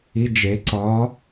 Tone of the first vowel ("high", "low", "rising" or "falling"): rising